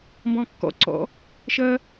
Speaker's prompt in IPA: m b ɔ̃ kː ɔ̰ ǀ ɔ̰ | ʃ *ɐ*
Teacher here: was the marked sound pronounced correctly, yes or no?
yes